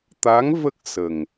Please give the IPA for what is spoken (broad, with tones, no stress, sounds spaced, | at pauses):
t̪ a˧˥ ŋ v ə˦˥ k̚ s ə˨˩ ŋ